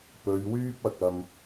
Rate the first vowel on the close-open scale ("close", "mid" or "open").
mid